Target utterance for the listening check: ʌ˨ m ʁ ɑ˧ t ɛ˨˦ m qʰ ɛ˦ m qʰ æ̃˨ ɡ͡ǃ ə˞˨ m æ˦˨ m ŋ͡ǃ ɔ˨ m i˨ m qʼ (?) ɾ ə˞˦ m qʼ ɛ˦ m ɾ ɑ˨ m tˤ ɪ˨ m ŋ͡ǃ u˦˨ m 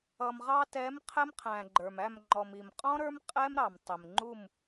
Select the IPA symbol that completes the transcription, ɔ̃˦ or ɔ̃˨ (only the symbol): ɔ̃˦